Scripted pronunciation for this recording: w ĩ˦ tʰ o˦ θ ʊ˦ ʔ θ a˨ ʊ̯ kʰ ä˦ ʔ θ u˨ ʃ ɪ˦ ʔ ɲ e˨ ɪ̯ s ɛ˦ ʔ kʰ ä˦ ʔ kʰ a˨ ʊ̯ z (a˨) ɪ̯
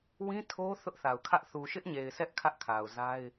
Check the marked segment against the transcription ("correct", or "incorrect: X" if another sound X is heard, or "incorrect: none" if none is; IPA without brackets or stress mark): incorrect: a˦